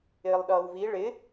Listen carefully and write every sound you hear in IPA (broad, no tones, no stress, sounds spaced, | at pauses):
ɪː lˠ ɗ ʌː w v i ɭ ɪ